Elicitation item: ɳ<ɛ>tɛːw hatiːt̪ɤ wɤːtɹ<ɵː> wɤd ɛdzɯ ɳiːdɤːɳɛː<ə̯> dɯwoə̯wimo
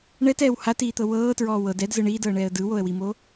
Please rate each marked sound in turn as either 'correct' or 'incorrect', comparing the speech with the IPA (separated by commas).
correct, incorrect, correct